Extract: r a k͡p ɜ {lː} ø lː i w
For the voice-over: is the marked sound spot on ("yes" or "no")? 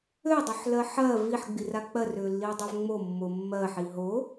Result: no